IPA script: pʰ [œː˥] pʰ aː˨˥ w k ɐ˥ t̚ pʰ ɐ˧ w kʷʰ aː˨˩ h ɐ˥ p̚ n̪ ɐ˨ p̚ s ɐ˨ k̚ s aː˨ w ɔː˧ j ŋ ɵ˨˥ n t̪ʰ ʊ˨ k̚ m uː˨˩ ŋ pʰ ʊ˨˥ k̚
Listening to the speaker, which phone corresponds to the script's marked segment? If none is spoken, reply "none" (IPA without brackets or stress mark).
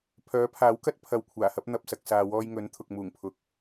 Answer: œː˨˥